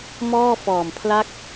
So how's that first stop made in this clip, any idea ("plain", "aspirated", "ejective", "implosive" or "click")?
aspirated